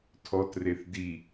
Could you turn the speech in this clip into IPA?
tʰɔtreθ di

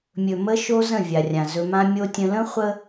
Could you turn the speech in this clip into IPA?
mʲɵ˨mə˦ ʃo˦zə̃˦˨ vʲa˨rʲã˨zɵ˦ mã˦mʲo˦tʲə̃˦ lə̃˦χʷə˦

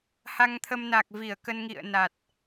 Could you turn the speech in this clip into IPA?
ha˧ŋt̪ʰə˧mna˨˩k̚ vi˧˩ə̯kə˧nŋḭ˧˨ə̯na˨˩t̚

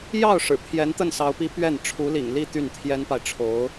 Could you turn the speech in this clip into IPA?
jɑ˥˩ʊ̯ ʂɻ̩˨˩pʰjɛ˧˥nt̪ə˥˩n sɑ˧˥ʊ̯pi˧˥ pɥɛ˥˩n ʈ͡ʂʰu˧˥lḭ˨˩ŋli˥˧ t̪y˥˩nt̪ʰjɛ˥npa˨ɪ̯ ʈ͡ʂʰo˧˥ʊ̯

